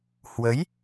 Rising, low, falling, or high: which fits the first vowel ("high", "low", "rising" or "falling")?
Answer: rising